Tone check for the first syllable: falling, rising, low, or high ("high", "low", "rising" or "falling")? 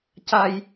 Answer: low